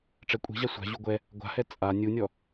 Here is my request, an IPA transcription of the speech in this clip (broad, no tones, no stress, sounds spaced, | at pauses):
ʈ͡ʂ ɛ kʷʼ i̤ ʑ a sʷ a̤ ʑ u ɡʷ ɛ | ɡʷ a̤ h ɛ t͡sʼ a nʲ u nʲ ɔ